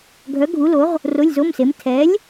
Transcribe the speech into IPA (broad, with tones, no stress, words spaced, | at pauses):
ɡʱœ˨˥ ɡʱu˨˥lo˨˥ʁ | ro˧˥˧lʲzo˧˥˧mse˨˥m tʰɛ˨˥lʲ